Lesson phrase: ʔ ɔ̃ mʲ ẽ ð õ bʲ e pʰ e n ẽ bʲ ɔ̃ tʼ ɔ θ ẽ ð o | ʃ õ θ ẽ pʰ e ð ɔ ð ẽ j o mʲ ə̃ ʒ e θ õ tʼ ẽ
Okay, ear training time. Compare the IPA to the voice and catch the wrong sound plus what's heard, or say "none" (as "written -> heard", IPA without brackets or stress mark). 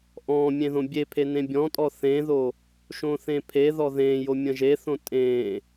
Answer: none